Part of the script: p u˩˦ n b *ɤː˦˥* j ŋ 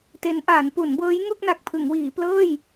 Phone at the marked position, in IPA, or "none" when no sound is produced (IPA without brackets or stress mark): ɤː˦˥